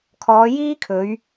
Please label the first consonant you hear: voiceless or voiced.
voiceless